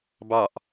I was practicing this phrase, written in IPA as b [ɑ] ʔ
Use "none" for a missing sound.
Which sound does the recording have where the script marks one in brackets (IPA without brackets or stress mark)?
ɑ